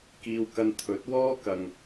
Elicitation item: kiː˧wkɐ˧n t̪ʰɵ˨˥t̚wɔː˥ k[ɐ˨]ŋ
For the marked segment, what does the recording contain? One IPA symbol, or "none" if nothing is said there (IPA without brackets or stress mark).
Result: ɐ˨